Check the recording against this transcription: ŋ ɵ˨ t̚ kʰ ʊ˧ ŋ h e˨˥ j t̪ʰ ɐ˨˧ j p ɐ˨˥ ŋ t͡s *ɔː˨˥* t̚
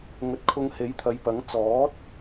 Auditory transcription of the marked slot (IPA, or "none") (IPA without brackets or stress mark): ɔː˨˥